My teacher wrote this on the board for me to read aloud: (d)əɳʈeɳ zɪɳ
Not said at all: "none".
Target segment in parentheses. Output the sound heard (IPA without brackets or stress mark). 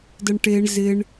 d